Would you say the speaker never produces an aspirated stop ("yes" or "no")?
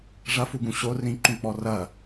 yes